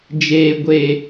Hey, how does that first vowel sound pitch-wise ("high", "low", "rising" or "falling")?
low